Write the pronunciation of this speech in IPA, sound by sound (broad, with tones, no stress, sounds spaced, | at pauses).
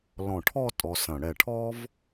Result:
l ɔ̃˧˩ ʈʰ ɔ˥˧ tʼ ɔ˧ s ɐ̃˧˩ ɽ ɛ˧˩ ʈʰ ɔ˥ v